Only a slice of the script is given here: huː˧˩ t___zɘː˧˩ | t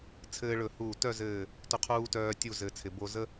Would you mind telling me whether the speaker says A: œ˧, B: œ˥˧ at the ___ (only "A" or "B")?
B